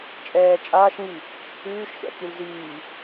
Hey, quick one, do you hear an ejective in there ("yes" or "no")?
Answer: yes